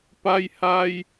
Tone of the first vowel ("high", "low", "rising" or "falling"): high